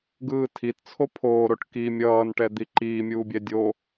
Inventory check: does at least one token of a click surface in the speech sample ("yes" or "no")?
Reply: yes